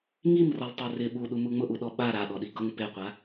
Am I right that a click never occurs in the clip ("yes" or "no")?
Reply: yes